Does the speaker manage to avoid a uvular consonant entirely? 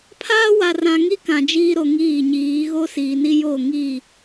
yes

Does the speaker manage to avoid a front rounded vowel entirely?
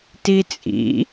yes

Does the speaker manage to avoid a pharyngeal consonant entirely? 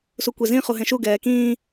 yes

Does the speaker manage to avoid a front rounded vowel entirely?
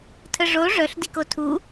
no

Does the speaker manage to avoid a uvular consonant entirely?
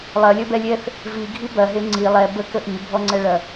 yes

